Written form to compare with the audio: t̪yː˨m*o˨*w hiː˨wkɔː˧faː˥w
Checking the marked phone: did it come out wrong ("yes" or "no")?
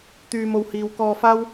no